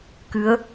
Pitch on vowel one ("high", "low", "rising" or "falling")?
rising